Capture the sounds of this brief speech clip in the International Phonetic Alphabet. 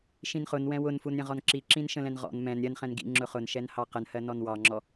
ʃĩnχʊn wɛ̃wʊnfun ɾʲə̃ʁɔnǁi ǁĩnʃə̃lɛ̃nʁɔ̰n mɛ̃n ɾʲɜnχɛ̃n ɡḭ ŋ͡ǁʊχʊn ʃɛnhɑqənhɜ nɔnwɑŋ͡ǁɔ

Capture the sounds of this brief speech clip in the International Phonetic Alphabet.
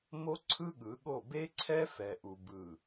mo˦ǀʰɯ˦ ɠɯ˨˦ɠo˦˨ be˦ǀʰɛ˦ fɛ˨ʔu˨ bɯ˨

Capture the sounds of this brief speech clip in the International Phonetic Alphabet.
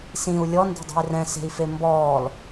sĩu̯ lʲɔnde̤dˤe̤i̯ rɛ̃se̤i̯fe mbɔːl

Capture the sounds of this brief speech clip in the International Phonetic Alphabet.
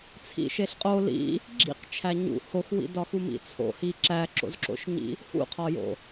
t͡sʰḭʃeɬqʼo lḭ | ɡ͡ǁḭqt͡ʃʰæ ɲṵ hoxwḭdɒ xumḭt͡sʰo̰hi ǁæǁo̰zǁo̰ʃɲḭ | hṵqʰɒjo̰

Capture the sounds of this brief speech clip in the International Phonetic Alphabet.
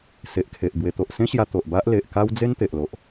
se˨ʔkʰe˨ʔ bwe˧ t̪o˨ʔsẽ˦ɕja˧ t̪o˨ʔba˦ʔ le˨ʔka˦w d͡ze˦nt̪e˨ʔlo˨ʔ

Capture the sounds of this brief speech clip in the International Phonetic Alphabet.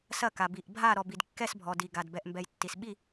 sɐ˦˨ka˨ bi˨ʔbʱa˦˨ ɾɔ˨bi˨dkːɛ˦˨s bʱɔ˨ di˨ɡa˨d bɛ˨ʔmbɛ˨j tːi˨sɓi˦˨

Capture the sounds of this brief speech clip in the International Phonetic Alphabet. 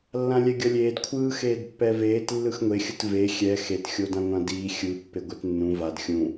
lːãlʲɛɡʲʌlʲeːd kʷʰɯː xeːdpːɛveːt lːɯxŋʷe xʲɯtve xʲɛ xet xʲodãŋʷãdiː xʲɯ pːeɡʷɛtnːũ vad xʲũ

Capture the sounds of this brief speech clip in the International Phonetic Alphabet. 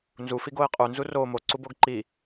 nzufiɡoɪ̯ qʼunzu ro moǀuboɡ ǃi

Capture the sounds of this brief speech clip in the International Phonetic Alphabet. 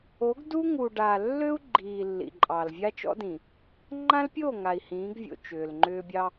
o˨˦ɡdu˦ ŋu˨ɖaː˨ lːø˦u̯ ɡ͡ǃiː˨ lːḭ˨ǃʼɑ˨l vʲa˦t͡ʃɔ̰˦dĩ˨ | ŋ͡ǃã˦lpʲoː˦˨ ŋa˨i̯hĩː˨˦ɡvʲo̰˨ t͡ʃʏː˨lŋ͡ǃʏː˦ bʲɑ˦

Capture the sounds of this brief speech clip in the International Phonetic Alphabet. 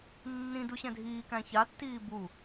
nːĩ duɕɛ̃dʱiːkæ̃ çatːiː bu

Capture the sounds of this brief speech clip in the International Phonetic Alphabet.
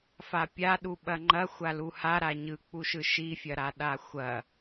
fapʲaɗu ɓɐŋ͡ǃɐ xʷaluha ɾaɲɯk͡puʃɯ ʃifʲɐɾa ɗaxʷɐ

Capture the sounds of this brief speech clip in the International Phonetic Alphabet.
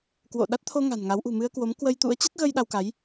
kwo̰˧˨ ɗa˦˥t̚t̪ʰo˧ ŋa̤˨˩nŋa˨˦w ʔṳ˨˩mɨ˧ə̯kwo˨˦m kwə˧jt̪ṵ˧˥ə̯ t͡ɕə˦˥t̚ɣə˧j ɗa˧w ka˨˦j

